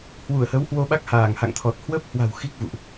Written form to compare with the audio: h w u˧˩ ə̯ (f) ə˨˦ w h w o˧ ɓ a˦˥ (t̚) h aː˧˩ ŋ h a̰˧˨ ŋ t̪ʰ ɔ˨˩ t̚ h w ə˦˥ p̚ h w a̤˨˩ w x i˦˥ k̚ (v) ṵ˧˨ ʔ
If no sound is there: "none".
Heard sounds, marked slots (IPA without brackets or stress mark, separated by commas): h, k̚, v